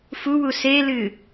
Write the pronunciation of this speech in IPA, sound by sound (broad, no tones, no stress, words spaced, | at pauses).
fuwu selɨ